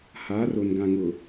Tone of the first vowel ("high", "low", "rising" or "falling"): rising